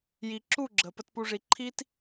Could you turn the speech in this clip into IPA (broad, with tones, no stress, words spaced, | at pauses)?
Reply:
ji˨ ǁu˦˨ɡ͡ǁə˨ pə˨tpu˨ʐi˨ ǃʰi˦t